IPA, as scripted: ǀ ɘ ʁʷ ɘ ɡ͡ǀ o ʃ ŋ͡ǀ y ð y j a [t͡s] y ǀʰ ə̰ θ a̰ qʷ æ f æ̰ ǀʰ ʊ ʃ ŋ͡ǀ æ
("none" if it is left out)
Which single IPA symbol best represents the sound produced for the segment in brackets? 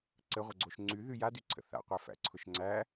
d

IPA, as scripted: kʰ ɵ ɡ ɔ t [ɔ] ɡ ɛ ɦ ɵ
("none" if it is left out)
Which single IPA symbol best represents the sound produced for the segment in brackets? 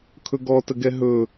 ə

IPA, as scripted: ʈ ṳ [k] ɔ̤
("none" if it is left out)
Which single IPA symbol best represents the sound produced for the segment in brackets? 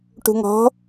ŋ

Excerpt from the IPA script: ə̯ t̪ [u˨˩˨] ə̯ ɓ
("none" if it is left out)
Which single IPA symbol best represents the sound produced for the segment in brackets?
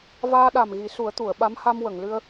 u˨˩˨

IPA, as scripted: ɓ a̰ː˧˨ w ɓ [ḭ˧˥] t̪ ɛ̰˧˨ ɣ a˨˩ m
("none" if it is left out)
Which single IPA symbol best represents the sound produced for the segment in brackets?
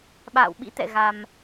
ḭ˧˥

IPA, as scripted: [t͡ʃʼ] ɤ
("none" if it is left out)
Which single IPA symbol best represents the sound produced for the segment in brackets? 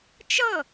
t͡ʃ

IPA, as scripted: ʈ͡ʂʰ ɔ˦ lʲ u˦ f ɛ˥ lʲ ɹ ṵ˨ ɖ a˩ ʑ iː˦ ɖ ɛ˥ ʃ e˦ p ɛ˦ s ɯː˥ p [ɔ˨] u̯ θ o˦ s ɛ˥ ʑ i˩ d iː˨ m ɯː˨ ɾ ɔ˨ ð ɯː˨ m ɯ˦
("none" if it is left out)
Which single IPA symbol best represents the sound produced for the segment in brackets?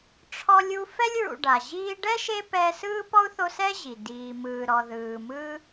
ɔ˥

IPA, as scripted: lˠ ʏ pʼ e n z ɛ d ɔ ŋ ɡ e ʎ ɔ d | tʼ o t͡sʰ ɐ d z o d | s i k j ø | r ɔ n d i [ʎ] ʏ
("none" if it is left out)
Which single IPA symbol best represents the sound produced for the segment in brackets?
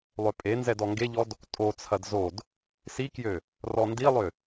lˠ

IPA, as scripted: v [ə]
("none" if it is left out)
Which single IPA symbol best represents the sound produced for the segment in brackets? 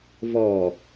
ɔ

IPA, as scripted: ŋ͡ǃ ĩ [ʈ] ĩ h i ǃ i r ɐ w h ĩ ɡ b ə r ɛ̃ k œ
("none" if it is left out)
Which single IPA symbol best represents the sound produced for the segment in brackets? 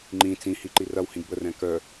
t͡s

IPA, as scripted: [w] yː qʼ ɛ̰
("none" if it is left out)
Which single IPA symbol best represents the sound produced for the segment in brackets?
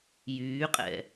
j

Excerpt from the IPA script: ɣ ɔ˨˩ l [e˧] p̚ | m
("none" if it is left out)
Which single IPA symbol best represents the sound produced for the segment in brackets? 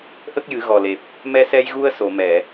e˨˩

